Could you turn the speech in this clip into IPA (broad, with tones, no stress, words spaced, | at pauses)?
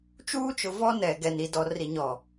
t͡ʃuː˦t͡ʃʊ˨vɔ˦ nɛ˨ ɡɛ˨n i˨ dɔ˨ ri˨ɲɔ˨